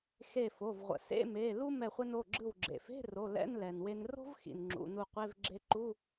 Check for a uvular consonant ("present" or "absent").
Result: present